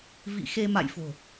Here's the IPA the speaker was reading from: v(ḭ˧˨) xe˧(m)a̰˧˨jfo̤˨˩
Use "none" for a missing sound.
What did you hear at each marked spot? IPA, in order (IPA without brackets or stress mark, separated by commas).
ḭ˧˨, m